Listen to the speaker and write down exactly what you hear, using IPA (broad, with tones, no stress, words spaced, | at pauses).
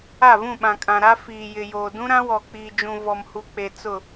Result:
a˦˨vũ˦˨ɓã˨kʼã˨ ɾa˦ fiː˨jɪ˨joː˨ dũ˦ɾã˦ wɔ˨k͡piː˨d͡ʒũ˨ vɔ˨mhu˨k͡pe˨ t͡sʊ˦˨